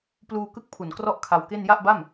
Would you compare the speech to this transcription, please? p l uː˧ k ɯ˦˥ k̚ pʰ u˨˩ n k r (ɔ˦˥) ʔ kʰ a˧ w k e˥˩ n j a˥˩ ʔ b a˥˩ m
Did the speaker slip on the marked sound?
yes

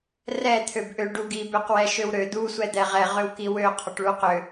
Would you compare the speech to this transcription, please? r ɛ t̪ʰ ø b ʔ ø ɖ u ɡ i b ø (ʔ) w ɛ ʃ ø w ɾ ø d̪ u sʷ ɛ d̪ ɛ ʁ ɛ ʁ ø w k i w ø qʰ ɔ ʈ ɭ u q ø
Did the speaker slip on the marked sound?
yes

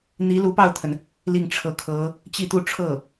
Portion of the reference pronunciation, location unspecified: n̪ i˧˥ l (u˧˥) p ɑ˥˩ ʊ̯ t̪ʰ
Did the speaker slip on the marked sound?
no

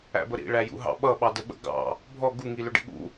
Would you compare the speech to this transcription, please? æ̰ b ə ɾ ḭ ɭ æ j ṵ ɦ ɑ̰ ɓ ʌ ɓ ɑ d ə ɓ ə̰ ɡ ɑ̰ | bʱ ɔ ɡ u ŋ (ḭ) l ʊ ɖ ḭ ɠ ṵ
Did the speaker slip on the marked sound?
yes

